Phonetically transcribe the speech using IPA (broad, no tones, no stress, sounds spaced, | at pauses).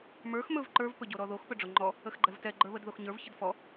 m ə˞ x m ɵ v ǃ ə˞ v p ɵ ɟ o ɾ ɔ ð o x p ɵ ɖ͡ʐ o ŋ͡ǃ ɔ | ə x ɡ͡ǃ ɛ v t ɛ ɡ͡ǃ ə˞ β ə d ð o x ɲ ə˞ v ç ə d f ɔ